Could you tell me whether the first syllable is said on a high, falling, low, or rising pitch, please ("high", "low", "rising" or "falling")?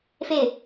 falling